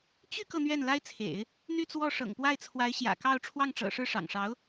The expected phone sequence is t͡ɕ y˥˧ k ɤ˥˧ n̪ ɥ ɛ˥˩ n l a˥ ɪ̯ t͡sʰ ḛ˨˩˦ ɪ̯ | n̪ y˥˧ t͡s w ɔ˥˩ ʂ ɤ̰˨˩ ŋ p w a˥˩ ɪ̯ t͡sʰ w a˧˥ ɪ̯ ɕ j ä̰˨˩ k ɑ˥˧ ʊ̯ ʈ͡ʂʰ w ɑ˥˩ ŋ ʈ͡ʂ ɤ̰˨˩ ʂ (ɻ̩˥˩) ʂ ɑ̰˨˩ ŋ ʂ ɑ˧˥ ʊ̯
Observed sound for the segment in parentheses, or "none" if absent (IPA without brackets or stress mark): ɻ̩˥˩